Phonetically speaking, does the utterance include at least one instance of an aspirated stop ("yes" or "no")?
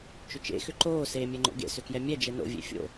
no